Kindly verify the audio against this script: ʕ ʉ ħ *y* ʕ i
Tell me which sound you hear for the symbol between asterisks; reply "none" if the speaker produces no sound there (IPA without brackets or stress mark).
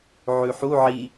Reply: u